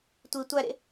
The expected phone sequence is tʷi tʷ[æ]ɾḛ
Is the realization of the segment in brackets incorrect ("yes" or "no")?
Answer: no